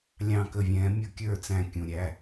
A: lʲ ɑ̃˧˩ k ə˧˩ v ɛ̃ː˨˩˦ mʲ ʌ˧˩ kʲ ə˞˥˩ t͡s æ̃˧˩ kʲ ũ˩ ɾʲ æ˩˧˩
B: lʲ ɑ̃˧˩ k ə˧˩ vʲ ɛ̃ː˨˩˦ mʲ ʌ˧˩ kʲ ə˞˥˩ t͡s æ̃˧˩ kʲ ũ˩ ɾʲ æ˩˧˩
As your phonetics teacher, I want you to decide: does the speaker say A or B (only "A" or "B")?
B